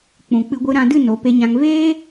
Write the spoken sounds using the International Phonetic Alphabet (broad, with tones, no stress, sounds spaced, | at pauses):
k͡p ũ˨ k͡p ɨ˧ ɡʷ ɨ˧ ɾ ã˧ d ɨ˦˨ n o˨˦ p e˧ ɲ ã˧ ŋ v eː˦